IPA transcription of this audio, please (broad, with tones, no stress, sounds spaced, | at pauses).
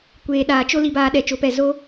kʷ eː˨ ɗ aː˨ t͡ʃ o˦ l i˧ b aː˧ ɗ ɛ˨ t͡ʃ o˨˦ p ɛ˨ z o˦